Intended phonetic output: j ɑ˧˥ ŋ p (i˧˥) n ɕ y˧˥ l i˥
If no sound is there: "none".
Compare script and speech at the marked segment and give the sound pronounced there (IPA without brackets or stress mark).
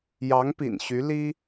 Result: ḭ˨˩